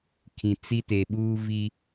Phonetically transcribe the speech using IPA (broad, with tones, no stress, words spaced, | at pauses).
kʰĩ˨t͡si˦ te˨ɓuː˦vi˦